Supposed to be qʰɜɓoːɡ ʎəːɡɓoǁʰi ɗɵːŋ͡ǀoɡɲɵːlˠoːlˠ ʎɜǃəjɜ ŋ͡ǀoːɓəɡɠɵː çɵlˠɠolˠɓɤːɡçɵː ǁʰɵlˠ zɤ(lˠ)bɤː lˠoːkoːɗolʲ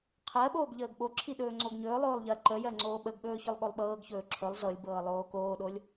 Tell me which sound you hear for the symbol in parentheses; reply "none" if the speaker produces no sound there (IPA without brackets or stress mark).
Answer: lʲ